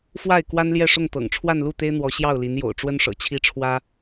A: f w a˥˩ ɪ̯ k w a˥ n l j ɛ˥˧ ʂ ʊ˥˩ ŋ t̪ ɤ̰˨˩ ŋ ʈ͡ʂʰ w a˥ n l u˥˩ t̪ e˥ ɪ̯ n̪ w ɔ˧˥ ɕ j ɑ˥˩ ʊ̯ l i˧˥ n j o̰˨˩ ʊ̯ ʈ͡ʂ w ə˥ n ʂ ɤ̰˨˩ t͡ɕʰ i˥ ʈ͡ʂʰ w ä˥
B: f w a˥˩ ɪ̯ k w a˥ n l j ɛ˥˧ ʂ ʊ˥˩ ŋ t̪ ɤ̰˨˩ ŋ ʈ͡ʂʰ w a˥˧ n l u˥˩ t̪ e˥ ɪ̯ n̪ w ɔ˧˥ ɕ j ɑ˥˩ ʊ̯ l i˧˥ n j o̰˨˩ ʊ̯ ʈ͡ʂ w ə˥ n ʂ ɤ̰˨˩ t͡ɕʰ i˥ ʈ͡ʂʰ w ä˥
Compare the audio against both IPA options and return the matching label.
B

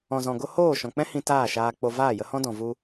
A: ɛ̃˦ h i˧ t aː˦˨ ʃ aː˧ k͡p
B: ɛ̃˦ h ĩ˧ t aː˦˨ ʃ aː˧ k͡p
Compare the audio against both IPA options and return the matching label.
B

